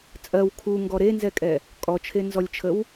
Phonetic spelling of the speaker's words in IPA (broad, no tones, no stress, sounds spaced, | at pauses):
t͡sʼ ɜ w kʰ u ŋ ɡ ɔ ɾ e n z ɛ kʼ ɛ | kʼ ɔ t͡ʃʰ e n z ɔ lʲ t͡ʃʰ ə w